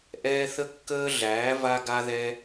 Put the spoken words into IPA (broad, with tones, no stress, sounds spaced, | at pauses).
ʔ ɛː˧ θ ə˧ kː əː˧ ɮ æː˩˧ v a˧ ɡ a˧ ð ɛ˧